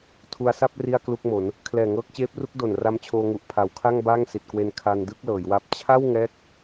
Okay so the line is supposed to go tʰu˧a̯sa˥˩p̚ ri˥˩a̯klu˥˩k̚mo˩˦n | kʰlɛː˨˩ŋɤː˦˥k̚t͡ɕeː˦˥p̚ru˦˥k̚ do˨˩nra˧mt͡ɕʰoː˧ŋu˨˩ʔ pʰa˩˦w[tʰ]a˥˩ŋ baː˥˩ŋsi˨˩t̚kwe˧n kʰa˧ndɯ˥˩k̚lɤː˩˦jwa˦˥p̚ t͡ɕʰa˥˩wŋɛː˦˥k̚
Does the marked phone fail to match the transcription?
yes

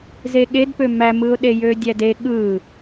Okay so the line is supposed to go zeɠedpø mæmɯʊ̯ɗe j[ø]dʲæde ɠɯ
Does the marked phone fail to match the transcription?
no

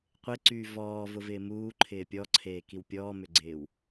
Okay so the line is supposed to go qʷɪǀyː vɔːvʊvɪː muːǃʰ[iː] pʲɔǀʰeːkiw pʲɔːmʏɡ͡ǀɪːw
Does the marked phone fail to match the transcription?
yes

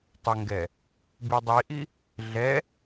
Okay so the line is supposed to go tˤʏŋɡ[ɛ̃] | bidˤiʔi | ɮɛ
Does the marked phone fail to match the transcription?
yes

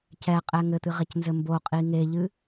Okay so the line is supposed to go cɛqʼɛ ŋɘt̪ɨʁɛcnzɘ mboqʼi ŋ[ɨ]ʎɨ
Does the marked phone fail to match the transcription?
yes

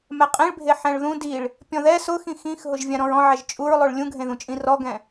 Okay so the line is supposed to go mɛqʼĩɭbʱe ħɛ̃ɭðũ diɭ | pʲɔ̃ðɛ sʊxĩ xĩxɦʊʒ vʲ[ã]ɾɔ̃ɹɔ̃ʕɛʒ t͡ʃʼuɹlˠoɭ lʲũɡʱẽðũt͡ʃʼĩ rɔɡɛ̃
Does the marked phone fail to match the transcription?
no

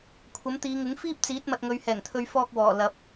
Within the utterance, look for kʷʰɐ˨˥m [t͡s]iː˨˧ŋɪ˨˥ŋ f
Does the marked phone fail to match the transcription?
yes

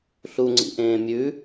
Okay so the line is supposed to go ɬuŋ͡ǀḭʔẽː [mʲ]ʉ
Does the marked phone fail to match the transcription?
no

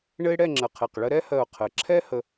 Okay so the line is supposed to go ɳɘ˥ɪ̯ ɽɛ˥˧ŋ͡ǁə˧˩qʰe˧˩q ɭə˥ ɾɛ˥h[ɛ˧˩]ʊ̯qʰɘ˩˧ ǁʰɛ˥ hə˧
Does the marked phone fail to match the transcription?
yes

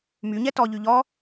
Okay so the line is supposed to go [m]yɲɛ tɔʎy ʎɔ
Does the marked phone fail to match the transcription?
no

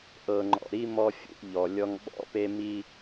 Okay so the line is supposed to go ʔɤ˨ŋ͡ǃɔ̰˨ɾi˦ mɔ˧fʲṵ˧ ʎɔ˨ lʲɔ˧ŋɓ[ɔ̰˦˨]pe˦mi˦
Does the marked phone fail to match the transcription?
yes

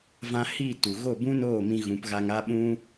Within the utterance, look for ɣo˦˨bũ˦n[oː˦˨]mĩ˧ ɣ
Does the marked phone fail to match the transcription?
no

